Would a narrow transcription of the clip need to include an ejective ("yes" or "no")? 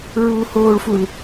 no